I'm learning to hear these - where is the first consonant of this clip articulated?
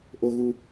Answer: throat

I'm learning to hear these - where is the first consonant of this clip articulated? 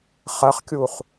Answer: uvula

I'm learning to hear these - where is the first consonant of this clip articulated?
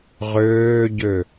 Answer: uvula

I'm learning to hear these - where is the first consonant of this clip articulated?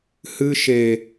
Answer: throat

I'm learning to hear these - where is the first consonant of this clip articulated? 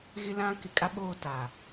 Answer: velum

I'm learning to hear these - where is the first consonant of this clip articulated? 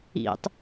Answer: tongue tip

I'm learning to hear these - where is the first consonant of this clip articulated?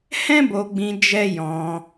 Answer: throat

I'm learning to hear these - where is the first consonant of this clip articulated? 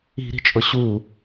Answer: tongue tip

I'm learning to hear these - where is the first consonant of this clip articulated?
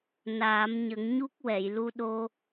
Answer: tongue tip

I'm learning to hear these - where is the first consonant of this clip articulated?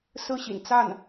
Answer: tongue tip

